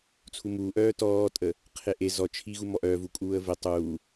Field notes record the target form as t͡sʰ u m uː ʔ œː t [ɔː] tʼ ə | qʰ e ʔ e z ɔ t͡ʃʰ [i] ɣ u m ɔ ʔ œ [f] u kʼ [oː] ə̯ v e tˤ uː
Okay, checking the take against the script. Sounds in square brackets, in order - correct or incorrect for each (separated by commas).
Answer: correct, correct, incorrect, incorrect